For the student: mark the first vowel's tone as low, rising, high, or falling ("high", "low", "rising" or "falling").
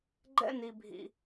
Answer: high